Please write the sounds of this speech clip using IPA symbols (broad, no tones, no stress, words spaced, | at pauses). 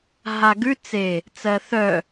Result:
ɦaɡʉ t͡se | t͡sɜθœ